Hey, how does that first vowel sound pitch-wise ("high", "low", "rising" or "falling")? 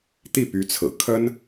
falling